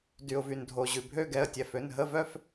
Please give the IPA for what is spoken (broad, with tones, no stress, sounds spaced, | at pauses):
d y˩ ʊ̯ v y˩ n dʱ o˩ ʑ ʉ˩ bʱ ø˥˧ ɡ ɛ˩˧˩ ə̯ tʲ ɛ˩˧˩ f ø˩˧˩ n ɦ ə˥˧ v œ˥˧ f